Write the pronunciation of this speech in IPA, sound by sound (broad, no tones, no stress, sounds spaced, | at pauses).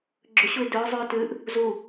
ɡ͡ǁ ɵ ɕ u ɪ̯ d ɵ ʊ̯ zˤ ʉ ʊ̯ t ʉ ʔ | z u